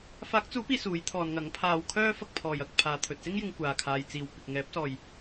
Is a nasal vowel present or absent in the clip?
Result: absent